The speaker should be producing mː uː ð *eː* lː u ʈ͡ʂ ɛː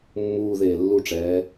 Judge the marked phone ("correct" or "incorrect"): correct